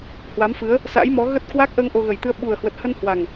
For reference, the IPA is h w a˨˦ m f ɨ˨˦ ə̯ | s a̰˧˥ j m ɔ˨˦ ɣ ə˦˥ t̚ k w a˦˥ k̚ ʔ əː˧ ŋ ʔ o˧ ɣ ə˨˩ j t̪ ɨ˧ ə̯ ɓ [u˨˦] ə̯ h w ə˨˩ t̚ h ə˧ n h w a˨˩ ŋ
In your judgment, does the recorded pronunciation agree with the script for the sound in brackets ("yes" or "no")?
no